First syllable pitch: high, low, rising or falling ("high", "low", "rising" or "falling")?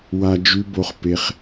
high